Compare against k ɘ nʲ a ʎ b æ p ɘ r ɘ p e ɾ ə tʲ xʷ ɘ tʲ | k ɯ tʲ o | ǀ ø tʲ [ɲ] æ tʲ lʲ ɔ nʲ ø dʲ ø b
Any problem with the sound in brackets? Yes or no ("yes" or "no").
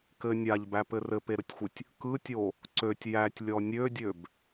yes